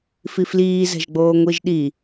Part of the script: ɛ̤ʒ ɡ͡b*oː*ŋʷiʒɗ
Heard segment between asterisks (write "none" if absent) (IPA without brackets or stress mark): oː